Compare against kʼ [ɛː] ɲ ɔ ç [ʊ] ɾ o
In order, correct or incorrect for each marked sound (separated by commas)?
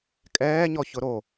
correct, correct